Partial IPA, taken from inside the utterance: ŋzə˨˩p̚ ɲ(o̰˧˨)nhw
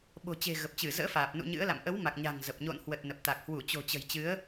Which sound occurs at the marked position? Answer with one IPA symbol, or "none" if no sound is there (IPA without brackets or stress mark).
o̰˧˨